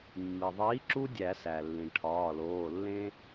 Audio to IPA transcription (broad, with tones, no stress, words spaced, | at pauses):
mːi˩ðˤiː˨˥ǁu˦ dʲæ˨˩˦ sæ˩lːĩ˩ʈʰɒː˩˧˩loː˩˧˩ lːẽ˦